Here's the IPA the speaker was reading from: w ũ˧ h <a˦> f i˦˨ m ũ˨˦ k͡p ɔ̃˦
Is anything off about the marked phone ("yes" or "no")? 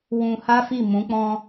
no